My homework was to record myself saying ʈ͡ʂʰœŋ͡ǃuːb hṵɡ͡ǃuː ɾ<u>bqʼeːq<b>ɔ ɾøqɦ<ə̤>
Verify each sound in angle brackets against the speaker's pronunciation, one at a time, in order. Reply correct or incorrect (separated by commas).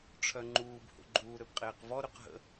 incorrect, incorrect, incorrect